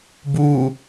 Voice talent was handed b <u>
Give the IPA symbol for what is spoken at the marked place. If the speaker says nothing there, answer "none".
u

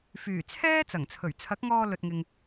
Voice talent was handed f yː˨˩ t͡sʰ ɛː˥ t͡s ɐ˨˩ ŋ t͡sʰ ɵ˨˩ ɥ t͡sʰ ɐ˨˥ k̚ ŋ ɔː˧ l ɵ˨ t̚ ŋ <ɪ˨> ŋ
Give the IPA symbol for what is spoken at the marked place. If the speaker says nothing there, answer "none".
ɪ˨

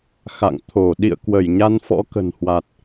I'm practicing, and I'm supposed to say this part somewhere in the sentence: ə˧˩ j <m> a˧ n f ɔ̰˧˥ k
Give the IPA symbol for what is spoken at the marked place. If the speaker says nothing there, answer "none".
ɲ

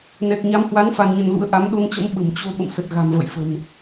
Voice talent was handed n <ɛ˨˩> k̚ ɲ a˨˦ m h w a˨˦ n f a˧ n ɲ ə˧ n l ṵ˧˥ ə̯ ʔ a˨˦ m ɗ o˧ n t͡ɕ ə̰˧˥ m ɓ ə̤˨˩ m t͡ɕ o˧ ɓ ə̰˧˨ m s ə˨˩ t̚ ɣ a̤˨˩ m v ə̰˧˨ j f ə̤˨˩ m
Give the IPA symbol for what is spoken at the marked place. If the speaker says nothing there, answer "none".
ɛ˨˩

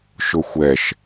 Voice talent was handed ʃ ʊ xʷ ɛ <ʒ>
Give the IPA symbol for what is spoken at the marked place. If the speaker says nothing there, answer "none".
ʃ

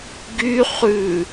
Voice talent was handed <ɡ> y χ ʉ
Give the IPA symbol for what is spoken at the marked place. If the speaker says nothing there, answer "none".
ɡ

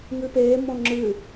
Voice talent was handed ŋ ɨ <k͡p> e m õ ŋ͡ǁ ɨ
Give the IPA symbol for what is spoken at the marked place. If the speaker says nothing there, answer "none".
p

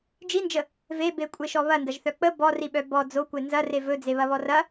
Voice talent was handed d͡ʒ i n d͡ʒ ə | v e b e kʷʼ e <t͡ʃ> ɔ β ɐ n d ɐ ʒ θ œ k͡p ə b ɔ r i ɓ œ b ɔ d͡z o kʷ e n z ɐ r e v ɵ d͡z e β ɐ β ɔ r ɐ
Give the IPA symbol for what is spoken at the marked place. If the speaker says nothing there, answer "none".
ʃ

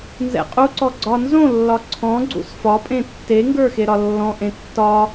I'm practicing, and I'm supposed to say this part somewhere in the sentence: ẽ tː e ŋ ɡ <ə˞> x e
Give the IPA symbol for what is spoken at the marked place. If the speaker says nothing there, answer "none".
ə˞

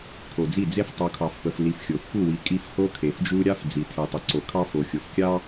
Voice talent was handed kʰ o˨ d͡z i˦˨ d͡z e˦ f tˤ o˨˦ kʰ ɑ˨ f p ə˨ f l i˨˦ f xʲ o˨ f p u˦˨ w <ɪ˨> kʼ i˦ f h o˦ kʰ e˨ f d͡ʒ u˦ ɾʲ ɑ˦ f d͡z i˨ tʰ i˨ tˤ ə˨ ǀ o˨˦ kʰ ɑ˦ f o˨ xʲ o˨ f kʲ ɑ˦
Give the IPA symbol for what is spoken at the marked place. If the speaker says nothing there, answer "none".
i˨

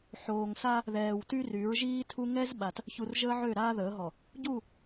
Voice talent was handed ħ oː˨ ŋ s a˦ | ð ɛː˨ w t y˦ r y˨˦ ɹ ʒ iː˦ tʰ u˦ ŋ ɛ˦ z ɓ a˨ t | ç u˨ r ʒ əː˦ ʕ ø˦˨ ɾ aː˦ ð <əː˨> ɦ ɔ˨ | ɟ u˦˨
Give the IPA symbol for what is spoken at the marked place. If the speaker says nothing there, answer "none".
əː˨˦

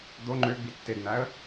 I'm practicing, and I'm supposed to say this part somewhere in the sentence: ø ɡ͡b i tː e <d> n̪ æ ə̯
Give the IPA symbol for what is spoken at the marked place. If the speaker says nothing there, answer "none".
d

